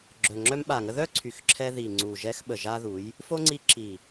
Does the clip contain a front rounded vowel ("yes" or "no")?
yes